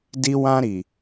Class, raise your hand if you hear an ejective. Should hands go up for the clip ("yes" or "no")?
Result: no